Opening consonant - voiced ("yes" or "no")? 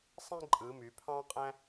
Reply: no